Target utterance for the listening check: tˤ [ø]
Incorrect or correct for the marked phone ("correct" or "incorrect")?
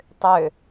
correct